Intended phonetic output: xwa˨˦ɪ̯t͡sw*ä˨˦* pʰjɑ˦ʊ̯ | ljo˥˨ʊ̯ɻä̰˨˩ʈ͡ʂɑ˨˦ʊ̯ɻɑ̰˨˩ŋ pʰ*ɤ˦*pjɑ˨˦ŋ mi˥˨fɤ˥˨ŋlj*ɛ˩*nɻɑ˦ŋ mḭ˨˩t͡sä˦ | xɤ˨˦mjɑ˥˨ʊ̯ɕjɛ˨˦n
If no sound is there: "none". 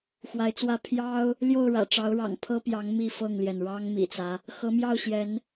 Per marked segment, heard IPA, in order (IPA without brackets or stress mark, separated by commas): ä˦, ɤ˦, ɛ˩